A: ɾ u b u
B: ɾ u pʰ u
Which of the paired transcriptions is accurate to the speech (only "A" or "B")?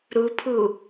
B